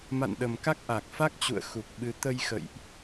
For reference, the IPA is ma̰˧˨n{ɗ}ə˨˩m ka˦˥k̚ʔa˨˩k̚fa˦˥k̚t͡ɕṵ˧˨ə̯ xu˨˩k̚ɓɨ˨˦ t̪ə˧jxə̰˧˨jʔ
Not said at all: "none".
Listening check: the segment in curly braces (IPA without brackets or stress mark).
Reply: ɗ